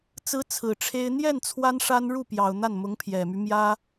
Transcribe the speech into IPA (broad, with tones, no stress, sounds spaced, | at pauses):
t͡s ɹ̩˧˥ t͡sʰ ɹ̩˨˩ ʈ͡ʂʰ e˥ ɪ̯ n̪ j ɛ˥˩ n t͡sʰ w a˥ n ʂ a˥ n ɻ u˥˩ p j ɑ˨˩ ʊ̯ n̪ a˥˩ n m ʊ˧˥ ŋ pʰ j ɛ˨˩ m y˦ m j ä˥